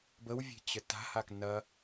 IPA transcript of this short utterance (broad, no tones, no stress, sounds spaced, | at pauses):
b ə w vʲ e̤ t͡ɕ ə t a̤ h a k n ɐ